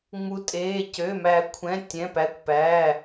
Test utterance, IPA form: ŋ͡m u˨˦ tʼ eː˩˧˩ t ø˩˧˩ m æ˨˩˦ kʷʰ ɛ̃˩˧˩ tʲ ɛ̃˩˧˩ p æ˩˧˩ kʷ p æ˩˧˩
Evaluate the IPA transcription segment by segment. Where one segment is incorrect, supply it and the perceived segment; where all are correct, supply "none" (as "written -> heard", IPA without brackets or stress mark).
t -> c